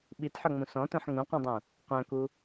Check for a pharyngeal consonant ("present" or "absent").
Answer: present